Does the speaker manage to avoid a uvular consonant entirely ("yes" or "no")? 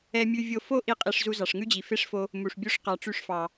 no